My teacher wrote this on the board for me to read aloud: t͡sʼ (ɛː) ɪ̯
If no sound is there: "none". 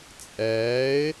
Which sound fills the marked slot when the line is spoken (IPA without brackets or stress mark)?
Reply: ɛː